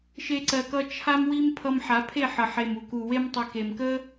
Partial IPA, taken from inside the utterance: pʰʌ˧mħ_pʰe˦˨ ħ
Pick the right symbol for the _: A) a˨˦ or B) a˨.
A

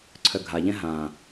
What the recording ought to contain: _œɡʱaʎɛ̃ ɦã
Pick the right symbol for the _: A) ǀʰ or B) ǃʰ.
A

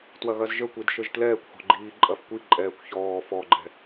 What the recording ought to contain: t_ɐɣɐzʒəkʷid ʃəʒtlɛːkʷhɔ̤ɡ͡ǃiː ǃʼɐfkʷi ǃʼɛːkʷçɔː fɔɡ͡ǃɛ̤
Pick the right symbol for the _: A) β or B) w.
B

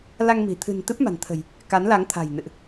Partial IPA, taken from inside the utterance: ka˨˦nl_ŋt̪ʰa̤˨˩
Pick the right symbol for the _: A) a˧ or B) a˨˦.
B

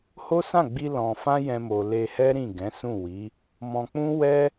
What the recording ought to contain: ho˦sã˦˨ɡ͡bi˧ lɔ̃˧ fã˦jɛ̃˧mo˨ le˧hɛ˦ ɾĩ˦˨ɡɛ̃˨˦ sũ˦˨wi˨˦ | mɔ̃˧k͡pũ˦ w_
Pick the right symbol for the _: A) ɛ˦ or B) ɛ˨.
A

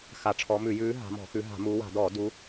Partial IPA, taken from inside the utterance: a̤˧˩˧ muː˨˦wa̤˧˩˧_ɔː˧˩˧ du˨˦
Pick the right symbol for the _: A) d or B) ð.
A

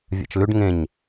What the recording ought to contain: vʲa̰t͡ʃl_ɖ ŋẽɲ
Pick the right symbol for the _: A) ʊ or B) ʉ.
B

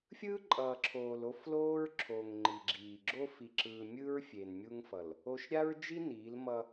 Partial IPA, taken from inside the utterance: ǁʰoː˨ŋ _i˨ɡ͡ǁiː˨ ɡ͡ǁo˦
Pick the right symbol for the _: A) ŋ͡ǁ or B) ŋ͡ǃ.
B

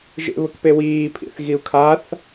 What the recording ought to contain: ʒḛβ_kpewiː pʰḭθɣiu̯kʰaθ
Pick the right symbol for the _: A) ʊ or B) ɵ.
A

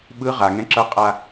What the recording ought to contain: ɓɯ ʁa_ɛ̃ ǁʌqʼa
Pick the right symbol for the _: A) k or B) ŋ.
B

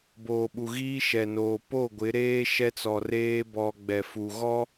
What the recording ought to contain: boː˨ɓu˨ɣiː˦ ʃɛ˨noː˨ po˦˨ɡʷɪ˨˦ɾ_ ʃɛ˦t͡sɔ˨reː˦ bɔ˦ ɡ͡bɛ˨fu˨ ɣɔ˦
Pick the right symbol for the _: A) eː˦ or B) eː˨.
A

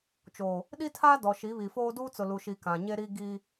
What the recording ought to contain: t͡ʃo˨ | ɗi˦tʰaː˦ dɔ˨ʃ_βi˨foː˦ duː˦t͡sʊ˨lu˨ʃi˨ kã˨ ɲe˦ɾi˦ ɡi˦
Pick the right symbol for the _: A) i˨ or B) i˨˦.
B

